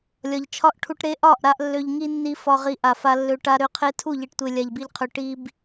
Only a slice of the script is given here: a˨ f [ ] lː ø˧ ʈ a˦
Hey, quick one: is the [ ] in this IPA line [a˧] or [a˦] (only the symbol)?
a˧